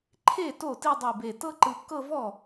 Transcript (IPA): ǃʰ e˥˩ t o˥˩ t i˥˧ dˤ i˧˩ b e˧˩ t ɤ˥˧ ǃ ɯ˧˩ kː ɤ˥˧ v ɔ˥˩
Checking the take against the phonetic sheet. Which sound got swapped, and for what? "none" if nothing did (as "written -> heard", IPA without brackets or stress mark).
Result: none